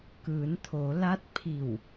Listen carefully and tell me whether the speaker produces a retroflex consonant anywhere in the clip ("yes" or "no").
no